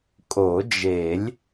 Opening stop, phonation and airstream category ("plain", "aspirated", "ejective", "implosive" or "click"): ejective